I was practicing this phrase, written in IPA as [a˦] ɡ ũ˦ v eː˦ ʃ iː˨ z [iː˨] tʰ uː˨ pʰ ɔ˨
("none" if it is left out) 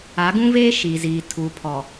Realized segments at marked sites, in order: a˨˦, iː˨

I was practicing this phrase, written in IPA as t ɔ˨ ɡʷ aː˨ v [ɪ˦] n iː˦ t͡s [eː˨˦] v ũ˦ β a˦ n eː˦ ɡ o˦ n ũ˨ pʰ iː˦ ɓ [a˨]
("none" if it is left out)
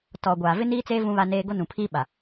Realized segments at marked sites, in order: ɪ˦, eː˦, a˨

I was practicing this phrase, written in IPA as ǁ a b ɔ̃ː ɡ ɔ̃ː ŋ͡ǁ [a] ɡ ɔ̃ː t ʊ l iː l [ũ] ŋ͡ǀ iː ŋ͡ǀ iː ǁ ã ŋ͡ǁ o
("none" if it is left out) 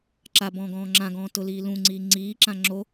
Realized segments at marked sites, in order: ã, ũ

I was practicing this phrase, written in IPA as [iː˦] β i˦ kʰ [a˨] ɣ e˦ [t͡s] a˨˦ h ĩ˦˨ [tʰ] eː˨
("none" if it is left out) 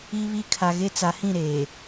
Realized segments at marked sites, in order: i˦, a˨, t͡s, ɾ

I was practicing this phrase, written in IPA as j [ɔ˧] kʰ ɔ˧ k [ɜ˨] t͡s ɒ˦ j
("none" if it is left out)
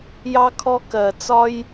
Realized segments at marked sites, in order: ɑ˧, ɜ˨

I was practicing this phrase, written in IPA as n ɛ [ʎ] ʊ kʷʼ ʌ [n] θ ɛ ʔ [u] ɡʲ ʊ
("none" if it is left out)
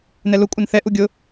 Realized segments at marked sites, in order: l, n, u

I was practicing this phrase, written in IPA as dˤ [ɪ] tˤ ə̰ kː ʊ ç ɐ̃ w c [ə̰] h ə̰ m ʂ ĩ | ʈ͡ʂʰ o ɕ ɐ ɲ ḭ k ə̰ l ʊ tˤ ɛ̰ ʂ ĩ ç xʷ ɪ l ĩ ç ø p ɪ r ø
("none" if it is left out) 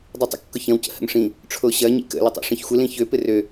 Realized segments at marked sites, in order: y, ə̰

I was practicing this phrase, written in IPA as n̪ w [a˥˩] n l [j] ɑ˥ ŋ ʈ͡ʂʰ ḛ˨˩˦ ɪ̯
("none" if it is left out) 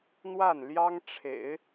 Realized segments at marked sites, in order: a˥˩, j

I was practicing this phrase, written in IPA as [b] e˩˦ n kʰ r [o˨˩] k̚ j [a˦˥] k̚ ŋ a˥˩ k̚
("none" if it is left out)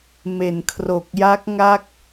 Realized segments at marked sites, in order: m, o˨˩, a˦˥

